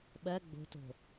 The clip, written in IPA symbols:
ɓ ɜ ɡ͡b o̤ t o̤

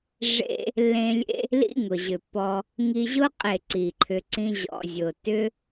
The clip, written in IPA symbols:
ʐ ḛ˧ | lː ẽ˧ lʲ ḛ˧ | l ḭ˦ ŋ ʊ˨ ʑ ʏ˨ pː ɔ˧ | ŋ i˧ ʑ ʊ˦ qʼ e˦˨ ǀ i˨ ǃʰ ʏ˧ ǀ ĩ˦ ʑ ɔ̰˨ zʲ ʊ˨ t ʏ˦

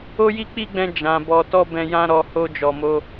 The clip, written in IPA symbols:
o˦ j i˦ k͡p i˦ ɡ͡b ɛ̃˧ d͡ʒ ã˨ b ɔ˨ t ɔ˧ b ɛ̃˧ j ã˦ ɾ ɔ˧ h o˧ d͡ʒ ɔ˨ m o˧

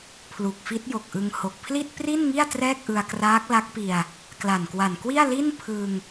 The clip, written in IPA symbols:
pʰ l u˨˩ k̚ f i˦˥ t̚ j o˨˩ k̚ ʔ ɯ˧ ŋ h o˨˩ k̚ pʰ l i˥˩ t̚ p r i˥˩ n ŋ i˥˩ a̯ t r ɛː˥˩ k̚ ʔ ɯ˧ a̯ k r aː˦˥ k̚ l a˦˥ k̚ p i˧ a̯ | k l a˨˩ n k w a˨˩ n k w i˥˩ a̯ l i˥˩ n pʰ ɯ˧ ŋ

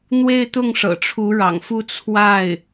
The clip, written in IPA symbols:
n̪ w e˥˧ ɪ̯ t̪ ʊ˥˩ ŋ ʂ ɤ̰˨˩ ʈ͡ʂʰ u˧˥ ɻ ɑ̰˨˩ ŋ f u˥˧ t͡sʰ w a˥˩ ɪ̯

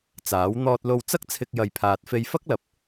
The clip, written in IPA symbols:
t͡s aː˨˥ w n̪ ɔː˧ t̚ l o˧ w t͡s ɐ˥ k̚ t͡sʰ ɪ˧ k̚ j ɐ˨ j pʰ aː˨ t̚ f e˧ j f ɐ˥ k̚ l ɐ˨ p̚

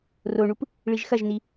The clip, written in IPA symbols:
r o ɳ u p | ɭ i ʒ x ɐ ʒ n i

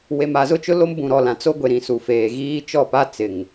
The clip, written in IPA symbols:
w e˨ m a˨ z ʊ˦˨ t͡ʃ ʊ˦ l o˦ m b ũ˨ ɾ ɔ˨ l ã˨ t͡s o˦ ɡʷ e˨ ɾ ĩ˨ s u˨ f eː˨ ɣ iː˦ t͡ʃ ɔ˦˨ p a˦ t͡s ɪ˨ ŋ

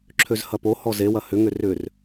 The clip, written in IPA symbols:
ǁʰ ø z h ɐ p o h ɔ z e w ɐ h ʏ ŋ ʏ r ʏ r

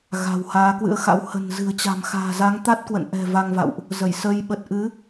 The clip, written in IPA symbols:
ɣ a̤˨˩ w h aː˨˦ k w ɨ̰˧˥ ə̯ x a̰˧˥ w h ə̤˨˩ n z ɨ̤˨˩ ə̯ t͡ɕ a̤˨˩ m x a̤ː˨˩ z a˨˦ ŋ t̪ a˦˥ t̚ k w ə̰˧˨ n ʔ ɛ̤˨˩ v a˧ ŋ v a̰˧˨ w ʔ | z ə˧˩ j s ə˧ j ɓ ə˨˩ t̚ ʔ ɨ˨˦

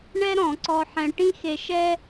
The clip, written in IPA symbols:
ɳ ɛ˥ ɾ ɔ̃˨˩˦ ǀ ɔ˧ ħ ɛ̃˧ ʈ ĩ˥ x e˧ ʃ ɛ˥

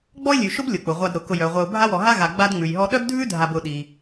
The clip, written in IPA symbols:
ɡ͡b ɔ˥ ɪ̯ lʲ ʉ˩ ʃ ʊ˥ b lʲ ʊ˩ k͡p ʊ˩ ʁʷ a˨ d ɾ ʊ˩ k ʊ˨ j œ˩ ʁʷ œ˨ ʊ̯ bʱ a˦ w ɔ˨ ɦ a˦ ɣ a˨ ɡ͡b a˦ d ŋ͡m ʉ˩ j ɦ ɔ˦ ɗ œ˥ b dʱ ʉ˥ dʱ a˨ b ʊ˨ ɗ i˨

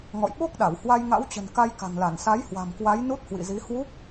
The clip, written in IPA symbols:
ŋ ɔ̰˧˨ j ɓ o˦˥ k̚ ɗ a˧˩ w h w a˧ j ŋ a̰˧˥ w t͡ɕ ə̤˨˩ n k a˧ j k a̤˨˩ ŋ l a˧˩ n s a˨˦ j h w a̤˨˩ m k w a˨˦ j n u˦˥ t̚ h w ḭ˧˨ z i˨˦ h w u˦˥ k̚

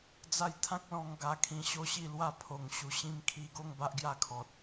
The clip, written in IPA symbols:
d͡z a˦ j t̪ʰ ã˦ k̚ l ɔ̃˧ ŋ ɡ a˧ kʰ ĩ˧ ɕ o˥˧ ɕ i˥˧ l w a˥˧ pʰ o˨˩ ŋ ɕ u˧ ɕ ĩ˧ m kʰ i˧ ɡ o˥˧ ŋ b a˦ ʔ ɡ j a˥˧ kʰ ɔ˨ t̚

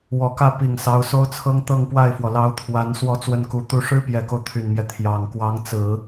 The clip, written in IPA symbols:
w ɔ˨˩ k ä˥˩ p i˨˩ ŋ s ɑ˧˥ ʊ̯ s o˥ ʊ̯ t͡sʰ ɤ˥ ŋ t̪ ɤ˥˧ ŋ p w a˥˩ ɪ̯ f w ɔ˩ l ɑ˧˥ ʊ̯ t̪ʰ w a˧˥ n s w ɔ˧˥ t͡s w ə˥˩ n k u˧˥ t̪ u˥ ʂ ɻ̩˥ p j ɛ˨˩ k o˦ ʊ̯ t̪ʰ y˨˩ n m j ɛ˦ t̪ʰ j ɑ˨˩ ŋ k w ɑ˧˥ ŋ t͡s ɹ̩˨˩˦

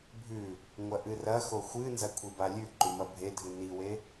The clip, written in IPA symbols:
bʱ ʉ | ŋʷ ɐ ʔ ɨ r ɐ x o xʷ ɨ n z ɐ kʷʰ i b a lʲ ʉ ǃ ʉ m ɐ bʱ e dʱ ɨ n i w e

